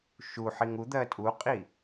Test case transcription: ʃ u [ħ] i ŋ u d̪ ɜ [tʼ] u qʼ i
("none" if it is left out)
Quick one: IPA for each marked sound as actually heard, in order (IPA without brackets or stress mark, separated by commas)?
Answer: ħ, tʼ